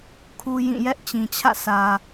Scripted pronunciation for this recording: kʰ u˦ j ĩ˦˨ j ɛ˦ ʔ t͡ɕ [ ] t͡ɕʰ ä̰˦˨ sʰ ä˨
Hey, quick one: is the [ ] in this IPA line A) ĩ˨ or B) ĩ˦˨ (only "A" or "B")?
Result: A